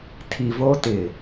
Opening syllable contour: low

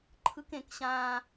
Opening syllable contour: high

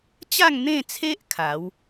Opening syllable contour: falling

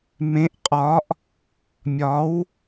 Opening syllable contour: rising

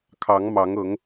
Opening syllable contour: rising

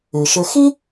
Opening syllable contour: low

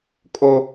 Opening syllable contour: high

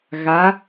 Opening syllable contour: rising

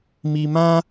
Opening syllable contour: low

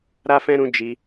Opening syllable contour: high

